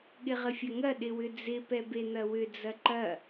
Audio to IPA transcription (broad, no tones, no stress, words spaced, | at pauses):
ɠɪʁəfʲɐŋɐ ɗɪwʏd͡zɪ pɛben̪ɐwʏ d͡zɐǃɐ